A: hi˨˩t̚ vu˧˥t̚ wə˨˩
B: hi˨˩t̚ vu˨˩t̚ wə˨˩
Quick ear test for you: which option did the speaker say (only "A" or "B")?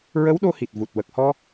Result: B